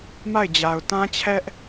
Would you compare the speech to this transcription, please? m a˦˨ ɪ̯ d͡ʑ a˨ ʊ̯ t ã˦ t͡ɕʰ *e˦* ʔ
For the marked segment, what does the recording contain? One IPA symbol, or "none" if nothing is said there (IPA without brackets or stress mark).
ɛ˦